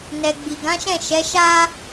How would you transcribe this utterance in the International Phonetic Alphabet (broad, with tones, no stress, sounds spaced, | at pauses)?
n ɛ˨ ɡ͡b i˨ ɡ ã˨˦ ʃ ɛ̃˦˨ ʃ ɛ˨˦ ʃ a˦